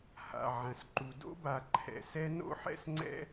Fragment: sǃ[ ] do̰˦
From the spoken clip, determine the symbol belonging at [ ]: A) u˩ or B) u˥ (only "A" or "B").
A